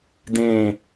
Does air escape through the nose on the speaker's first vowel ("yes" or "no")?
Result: yes